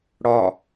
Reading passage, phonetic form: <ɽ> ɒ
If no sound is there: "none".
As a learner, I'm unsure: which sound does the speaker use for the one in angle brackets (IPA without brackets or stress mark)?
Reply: ɽ